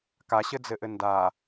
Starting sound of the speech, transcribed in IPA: k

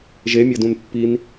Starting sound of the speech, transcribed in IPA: ʒ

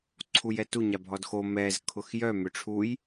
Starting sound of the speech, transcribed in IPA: ǀʰ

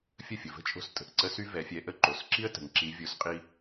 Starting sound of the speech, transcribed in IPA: fʲ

